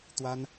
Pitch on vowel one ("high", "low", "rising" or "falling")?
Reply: high